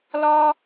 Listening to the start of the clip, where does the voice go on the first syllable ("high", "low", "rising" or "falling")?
high